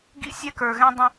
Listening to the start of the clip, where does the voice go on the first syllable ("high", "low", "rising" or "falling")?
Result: high